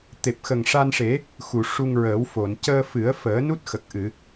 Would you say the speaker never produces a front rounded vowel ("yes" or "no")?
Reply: yes